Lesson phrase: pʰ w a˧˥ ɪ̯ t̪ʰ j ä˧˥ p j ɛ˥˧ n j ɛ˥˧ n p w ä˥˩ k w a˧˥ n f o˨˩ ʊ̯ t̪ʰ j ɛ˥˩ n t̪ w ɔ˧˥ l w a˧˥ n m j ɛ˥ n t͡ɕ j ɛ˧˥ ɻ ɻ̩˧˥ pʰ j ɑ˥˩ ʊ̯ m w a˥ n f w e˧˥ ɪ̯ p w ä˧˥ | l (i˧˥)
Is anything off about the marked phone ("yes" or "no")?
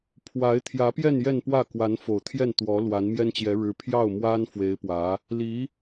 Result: no